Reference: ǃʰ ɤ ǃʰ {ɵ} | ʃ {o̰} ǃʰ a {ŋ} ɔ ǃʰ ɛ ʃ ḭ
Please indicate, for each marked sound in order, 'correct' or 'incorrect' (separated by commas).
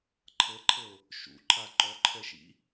incorrect, incorrect, incorrect